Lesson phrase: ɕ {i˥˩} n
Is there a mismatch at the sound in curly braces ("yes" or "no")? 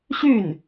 yes